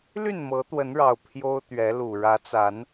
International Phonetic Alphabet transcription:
l y˥˨ n m ɤ˨˦ t̪ w ə˨˦ n ɻ ɑ˨˩ ʊ̯ pʰ j o˦ ʊ̯ t̪ ɥ ɛ˨˦ l u˨˩ ɻ ä˨˦ t͡s a˨˦ n

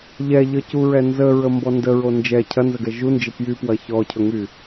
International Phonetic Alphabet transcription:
ʎ ɛ ʎ ə c u ɹ ɛ n z ə ɹ ə m b ɔ n d ə ɹ o n d͡ʒ ɛ cʰ ɐ n z ə ɡ ɛ ʒ u n d͡ʒ ɪ p j y p w ɐ ç ɔ cʰ ɵ ŋ y

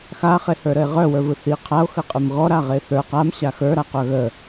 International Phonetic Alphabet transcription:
x a χ e h ə˞ ɾ ə e̯ ʁ œ w ə˞ v ɯ θ i qʰ a o̯ x ə qʼ ɨ m ɣ ɔ ɾ a ʁ e θ ə˞ q a m ɕ a x ə˞ ɾ a q œ ɣ ə

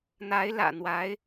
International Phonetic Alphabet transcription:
n̪ a˧˥ ɪ̯ l ä̰˨˩ n̪ w a˧˥ ɪ̯

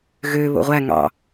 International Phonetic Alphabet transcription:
ɣ ø β o̰ ʁʷ æ ŋ ɑ̰

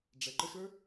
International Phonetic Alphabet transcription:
ɖ͡ʐ ɛ ǃ ə ʃ ə˞

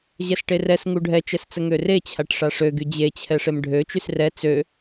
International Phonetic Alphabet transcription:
ʑ ɛ s ʈ e r ɛ s ŋ u ɖʱ ɛ t͡ʃ ɛ s t͡s ə ŋ ø r e t͡ɕʰ a ʈ ʂ a ʂ ø ɡ y d͡ʑ e t͡ɕʰ ɛ ʂ e m ɖʱ ø t͡ʃ y s r ɛ t͡s ø

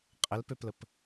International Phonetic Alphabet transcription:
qʼ ə l p ø p l ə p

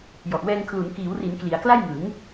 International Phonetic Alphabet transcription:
j ɔ˨˩ ʔ w ɛː˧ ŋ kʰ l u˩˦ n k iː˩˦ w r i˩˦ n k l i˩˦ a̯ k l a˥˩ j ŋ ɯ˩˦ ŋ

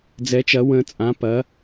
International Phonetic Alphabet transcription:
d͡z ɛ˩˧ t͡ʃ ɐ˩˧ w ə̃˩˧ t͡sʼ ã˩˧ p ɐ˩˧

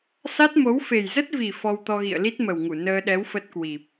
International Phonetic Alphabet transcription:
s a˦˥ t̚ m o˨˦ w f e˨˩ j z ə˦˥ t̚ v i˨˩ f ɔ˧ w t̪ ɔ˧ ɣ ḭ˧˨ ə̯ l i˦˥ t̚ m ə˨˩ w ŋ u˧˩ n əː˧ ɗ ɛ˨˦ w f ə˦˥ t̚ k w i˨˩ p̚

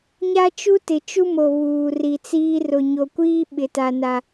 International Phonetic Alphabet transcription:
ɲ a˦ t͡ʃ u˦ t ɪ˨ t͡ʃ u˦ m o˨ β uː˨ r i˨ t͡s iː˦ r ʊ˨ ɲ o˨ kʷ iː˦ ɓ ɪ˨ t a˨ n a˨

